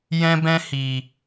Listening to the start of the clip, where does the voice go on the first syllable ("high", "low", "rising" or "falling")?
high